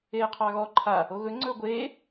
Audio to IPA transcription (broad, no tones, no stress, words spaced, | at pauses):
eːqʰɑɣɔ ǃʰa | oɣɵ ŋ͡ǀɵːɡʷeː